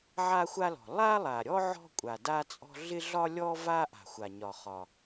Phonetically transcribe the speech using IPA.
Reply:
ʕ a˥ xʷ a˥ l ɔ̤˩ lˠ a˥ lˠ a˩ ɾʲ ɔ˥ ʕ ɔ̤˥ kʷʼ a˩ d a˥ t͡sʼ ɔ̤˥ ɮ ɪ˥ ɮ ɒ˥ lʲ ɔ˥ v a˥ ʔ a̤˩ xʷ a˩ ɲ ɒ˩ χ ɒ˩

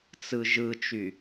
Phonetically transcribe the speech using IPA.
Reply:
t͡s ɯ ʒ ɯ t͡ʃ y

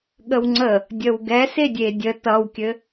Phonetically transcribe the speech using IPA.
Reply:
ɠ ə w ŋ͡ǀ ə | dʲ ə w ɡ ɛ s e dʲ e dʲ ə t ʌ w kʲ ɘ

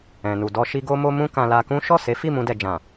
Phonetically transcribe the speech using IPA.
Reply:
ɛ̃˨ n u˨ d ɔ˧ ʃ i˧ ɡ o˧ m o˧ m ũ˦ k ã˧ l a˧ k ũ˦ ʃ ɔ˦˨ s e˨˦ f i˦˨ m ũ˧ d ɛ˨ d͡ʒ ã˨

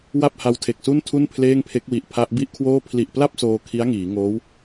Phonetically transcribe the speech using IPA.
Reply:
w a˥˩ p̚ h a˧ w tʰ e˨˩ k̚ s u˥˩ n tʰ u˥˩ n pʰ l eː˥˩ ŋ pʰ e˦˥ k̚ w i˨˩ ʔ pʰ a˦˥ ʔ b i˥˩ ʔ kʰ w oː˥˩ pʰ l i˨˩ ʔ p l a˥˩ p̚ s oː˧ kʰ i˦˥ a̯ ŋ iː˩˦ ŋ oː˦˥ w

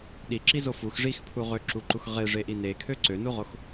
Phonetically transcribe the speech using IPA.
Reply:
ɗ i ǁ i z o f u x ʐ i x pʰ u ʁ ø ǁ u ǃ u x ʁ e ʐ e ʔ i n e kʰ ø ǀ ø n u ʁ o x

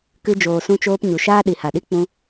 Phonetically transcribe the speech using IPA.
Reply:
k ɨ˧ d͡ʒ oː˨ s ũ˧ t͡ʃ oː˧ p ɲ u˨ ʃ aː˦ ɗ i˨ h a˨ ɗ i˦ k͡p ũ˧

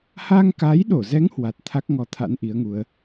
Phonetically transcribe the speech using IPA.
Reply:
h a˧ ŋ k a˨˦ j ɗ o˧˩ z ɛ˨˦ ŋ h w a˨˩ t̚ t̪ʰ a˦˥ k̚ ŋ ɔ˨˦ t̪ʰ a̰˧˥ n ʔ i˨˦ ə̯ ŋ u˨˦ ə̯

